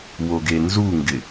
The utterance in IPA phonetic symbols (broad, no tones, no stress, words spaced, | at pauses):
woɡenzuŋɡɪ